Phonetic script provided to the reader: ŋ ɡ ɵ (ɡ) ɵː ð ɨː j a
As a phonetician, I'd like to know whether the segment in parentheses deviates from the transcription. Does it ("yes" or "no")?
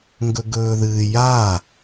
no